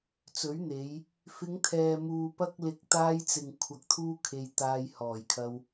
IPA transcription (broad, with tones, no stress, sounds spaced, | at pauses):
t͡s ɵ˨˥ ɥ n̪ e˨˧ j | f ɪ˨˧ ŋ t̪ʰ ɛː˨ m uː˨ p ɐ˧ k̚ l ɪ˨˥ k̚ t̪ aː˧ j t͡s ɪ˨ ŋ kʷʰ ɐ˧ k̚ t̪ʰ uː˥ kʰ e˧ j t̪ aː˧ j h ɔː˨˩ j kʰ ɐ˧ w